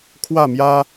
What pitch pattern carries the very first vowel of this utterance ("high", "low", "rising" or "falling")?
falling